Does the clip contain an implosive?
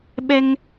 yes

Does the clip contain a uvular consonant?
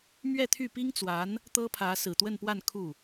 no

